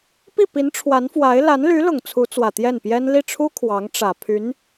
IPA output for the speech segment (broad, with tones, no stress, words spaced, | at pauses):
pi˥˩pi˧˥n ʈ͡ʂʰwa˧˥nfwa˧˥ɪ̯ la˧˥nly˧˥lʊ˨˩ŋ t͡sʰu˧˥t͡swä˨˩ t̪jɛ˥˩npjɛ˥n li˥˩ʈ͡ʂʰu˥ kʰwɑ˧˥ŋʈ͡ʂä˨˩ pʰy˧˥n